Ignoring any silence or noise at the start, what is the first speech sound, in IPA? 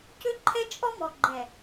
c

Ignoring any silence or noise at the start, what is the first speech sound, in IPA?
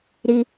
ɾ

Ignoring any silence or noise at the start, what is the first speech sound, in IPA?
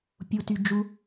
pʲ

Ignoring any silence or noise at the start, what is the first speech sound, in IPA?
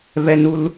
v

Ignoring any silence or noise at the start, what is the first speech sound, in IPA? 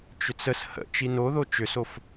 t͡ʃ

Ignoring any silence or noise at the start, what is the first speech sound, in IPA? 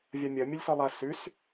vʲ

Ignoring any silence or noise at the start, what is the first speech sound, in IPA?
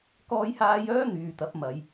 k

